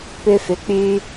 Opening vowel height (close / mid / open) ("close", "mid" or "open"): close